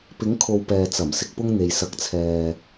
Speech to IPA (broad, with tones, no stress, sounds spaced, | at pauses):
p ɪ˨˥ ŋ kʰ o˨ w p ɛː˨ t͡s ɐ˨˩ m s ɪ˧ k̚ p ʊ˥ ŋ n̪ e˨ j s ɐ˨˥ k̚ t͡sʰ ɛː˨